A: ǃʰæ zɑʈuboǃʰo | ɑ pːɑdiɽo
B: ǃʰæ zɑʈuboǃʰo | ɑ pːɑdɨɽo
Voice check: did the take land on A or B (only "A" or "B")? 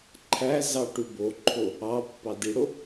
A